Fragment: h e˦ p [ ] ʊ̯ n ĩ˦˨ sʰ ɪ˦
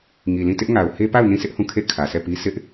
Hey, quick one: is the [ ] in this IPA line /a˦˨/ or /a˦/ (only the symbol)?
a˦˨